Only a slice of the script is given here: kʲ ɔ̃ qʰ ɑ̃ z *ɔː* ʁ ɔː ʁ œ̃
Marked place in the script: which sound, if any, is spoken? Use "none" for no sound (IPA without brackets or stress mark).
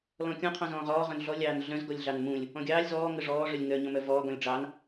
ɔ̃ː